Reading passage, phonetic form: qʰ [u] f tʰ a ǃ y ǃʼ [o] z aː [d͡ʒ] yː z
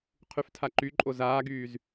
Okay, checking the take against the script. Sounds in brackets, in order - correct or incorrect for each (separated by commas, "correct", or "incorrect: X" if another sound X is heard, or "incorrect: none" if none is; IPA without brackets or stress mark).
incorrect: y, correct, incorrect: ɡ